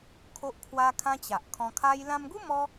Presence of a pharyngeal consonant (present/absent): absent